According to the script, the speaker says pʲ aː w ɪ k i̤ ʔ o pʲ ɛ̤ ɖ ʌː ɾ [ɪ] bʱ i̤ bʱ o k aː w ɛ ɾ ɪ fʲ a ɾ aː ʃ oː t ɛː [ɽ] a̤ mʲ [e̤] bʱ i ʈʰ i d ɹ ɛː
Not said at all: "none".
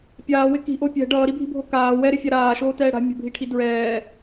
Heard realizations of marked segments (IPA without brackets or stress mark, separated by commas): i, ɽ, ɛ̤